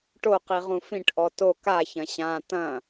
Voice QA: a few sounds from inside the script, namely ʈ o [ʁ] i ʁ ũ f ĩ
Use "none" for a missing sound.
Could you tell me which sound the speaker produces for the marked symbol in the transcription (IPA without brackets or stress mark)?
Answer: q